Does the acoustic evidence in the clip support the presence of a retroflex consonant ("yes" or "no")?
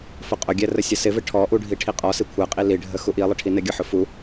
yes